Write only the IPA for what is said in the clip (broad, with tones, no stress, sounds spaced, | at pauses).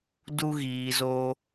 d u˧ ɣ iː˨ z o˧